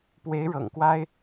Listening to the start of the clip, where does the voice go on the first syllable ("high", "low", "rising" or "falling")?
rising